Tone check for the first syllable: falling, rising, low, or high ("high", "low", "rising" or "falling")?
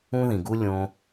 high